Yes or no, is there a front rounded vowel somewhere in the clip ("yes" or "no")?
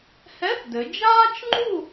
no